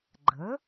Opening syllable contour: rising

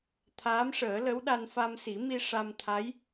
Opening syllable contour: rising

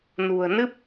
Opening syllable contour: low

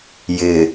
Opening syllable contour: low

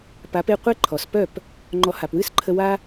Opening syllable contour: rising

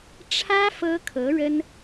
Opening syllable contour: high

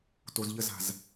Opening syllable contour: low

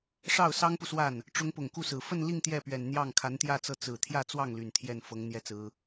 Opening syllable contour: falling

